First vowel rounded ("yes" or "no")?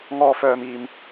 yes